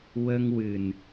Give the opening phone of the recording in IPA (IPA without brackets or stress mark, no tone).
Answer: w